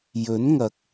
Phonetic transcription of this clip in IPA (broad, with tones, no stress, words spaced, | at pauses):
jɵ˨˥nŋɐ˨˥k̚